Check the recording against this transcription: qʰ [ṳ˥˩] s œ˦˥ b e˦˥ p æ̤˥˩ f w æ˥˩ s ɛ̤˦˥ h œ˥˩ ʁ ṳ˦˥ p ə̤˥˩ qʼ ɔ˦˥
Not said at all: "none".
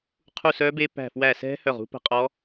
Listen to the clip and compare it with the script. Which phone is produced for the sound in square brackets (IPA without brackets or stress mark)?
u˥˩